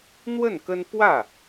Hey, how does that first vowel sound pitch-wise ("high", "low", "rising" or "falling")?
falling